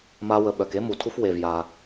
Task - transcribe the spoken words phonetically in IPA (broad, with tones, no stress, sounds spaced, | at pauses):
m a˦ w ə˨ ɓ œ˨ k e˦ m u˨ tʰ u˦ f w e˨ v j a˨